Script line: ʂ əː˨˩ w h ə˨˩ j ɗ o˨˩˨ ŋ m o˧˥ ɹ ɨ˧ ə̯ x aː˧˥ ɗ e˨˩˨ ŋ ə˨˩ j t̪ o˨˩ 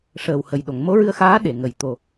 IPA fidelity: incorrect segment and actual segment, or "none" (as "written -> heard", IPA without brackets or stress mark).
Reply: none